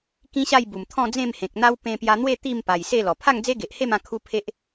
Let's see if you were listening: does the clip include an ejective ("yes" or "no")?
no